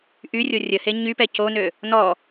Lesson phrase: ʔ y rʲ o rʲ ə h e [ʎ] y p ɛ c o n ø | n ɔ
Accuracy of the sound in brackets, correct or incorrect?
incorrect